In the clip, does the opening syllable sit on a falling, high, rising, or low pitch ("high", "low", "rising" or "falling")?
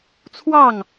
falling